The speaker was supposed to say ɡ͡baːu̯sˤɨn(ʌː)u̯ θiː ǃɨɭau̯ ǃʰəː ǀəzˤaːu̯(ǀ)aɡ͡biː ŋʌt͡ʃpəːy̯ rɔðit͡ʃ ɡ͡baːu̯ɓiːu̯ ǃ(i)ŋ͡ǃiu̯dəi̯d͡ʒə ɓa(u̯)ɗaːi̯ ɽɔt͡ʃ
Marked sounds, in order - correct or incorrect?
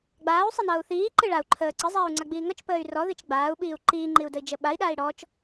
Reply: correct, incorrect: ŋ͡ǀ, incorrect: iː, incorrect: i̯

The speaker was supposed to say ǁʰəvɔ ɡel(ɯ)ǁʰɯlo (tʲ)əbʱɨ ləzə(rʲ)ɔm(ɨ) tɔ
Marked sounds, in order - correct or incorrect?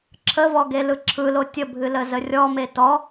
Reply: correct, correct, correct, incorrect: e

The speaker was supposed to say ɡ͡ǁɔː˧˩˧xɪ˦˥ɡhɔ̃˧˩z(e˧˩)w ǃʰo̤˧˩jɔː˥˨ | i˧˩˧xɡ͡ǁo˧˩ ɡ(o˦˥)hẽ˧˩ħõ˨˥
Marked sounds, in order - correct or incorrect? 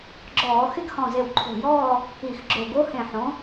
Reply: correct, correct

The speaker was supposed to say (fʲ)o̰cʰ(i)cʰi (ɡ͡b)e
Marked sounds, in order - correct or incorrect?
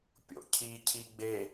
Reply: incorrect: pʲ, correct, correct

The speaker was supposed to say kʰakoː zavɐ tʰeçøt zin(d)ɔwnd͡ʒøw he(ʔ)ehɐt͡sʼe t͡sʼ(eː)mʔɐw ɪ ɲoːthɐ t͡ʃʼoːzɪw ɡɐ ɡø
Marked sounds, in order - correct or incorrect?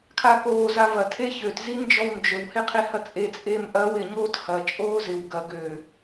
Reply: incorrect: d͡ʒ, incorrect: qʰ, correct

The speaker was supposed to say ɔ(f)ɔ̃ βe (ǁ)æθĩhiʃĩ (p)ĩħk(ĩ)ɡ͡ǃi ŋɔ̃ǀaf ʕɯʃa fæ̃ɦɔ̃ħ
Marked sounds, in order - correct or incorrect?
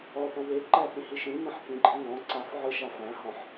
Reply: incorrect: θ, incorrect: ǃ, incorrect: m, correct

